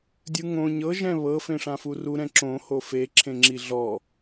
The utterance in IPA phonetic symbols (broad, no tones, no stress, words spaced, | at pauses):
dʲɯŋõ ɲɤ ʒɛ̃βɤ fẽʂãfuru ɾɛ̃ǁõ hofe ǁʰẽŋ͡ǁiɮɔ